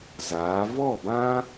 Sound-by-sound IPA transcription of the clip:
zaː˨˦ vɔ˦˨bã˦

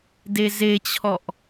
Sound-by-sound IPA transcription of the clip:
dezet͡ɕʰɔʔ

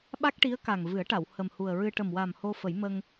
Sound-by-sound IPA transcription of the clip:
ɓa˦˥k̚ʈi˧˥ə̯ka˨˩ŋ vɨ˨˩˦ə̯ʈa˨˩˨w hə˨˩mhu˨˩ə̯ɹɨ˧ ʈə˨˩mwa˨˩m ho˧fə˨˩˦jmə˧ŋ

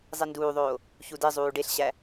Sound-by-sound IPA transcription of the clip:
zˤinduːðˤoː | çudizˤuː ɖeɬɕæ

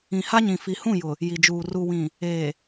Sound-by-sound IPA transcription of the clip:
ĩ˨ha˦ɲĩ˨ fi˨hũ˦˨jʊ˨ | ji˨d͡ʒuː˨ ru˨wĩ˨ | eː˨

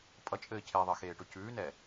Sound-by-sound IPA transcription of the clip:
pʼʌt͡ʃʼɘː cʰeðˤɘ xeːʈʊcʉːnɛ

